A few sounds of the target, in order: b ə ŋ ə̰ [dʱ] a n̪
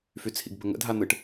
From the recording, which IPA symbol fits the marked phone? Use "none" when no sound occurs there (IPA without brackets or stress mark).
dʱ